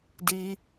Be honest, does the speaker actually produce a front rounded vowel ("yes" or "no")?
no